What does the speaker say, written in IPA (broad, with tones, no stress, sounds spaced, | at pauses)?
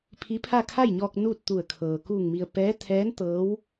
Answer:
pʰ i˧˥ pʰ a˥˨ kʰ a˥˨ j ɲ ɔː˧ k̚ n uː˥˨ t̚ t̪ u˧˩ ə̯ kʰ ɤː˩ k uː˧˩ ŋ m i˩ ə̯ p ɛː˧˥ t̪ʰ ɛː˧˥ n t̪ ɤː˧˥ w